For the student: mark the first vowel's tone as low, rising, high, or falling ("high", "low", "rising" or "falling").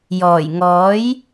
low